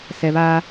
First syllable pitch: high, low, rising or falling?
low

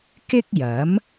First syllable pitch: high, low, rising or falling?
high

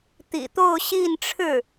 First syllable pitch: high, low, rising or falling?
low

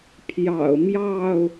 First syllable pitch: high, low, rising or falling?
low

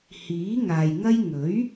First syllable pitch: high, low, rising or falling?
rising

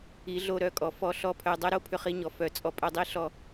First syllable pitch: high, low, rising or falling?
rising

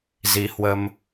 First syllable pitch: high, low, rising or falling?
rising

